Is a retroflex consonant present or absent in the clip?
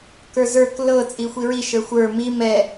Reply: absent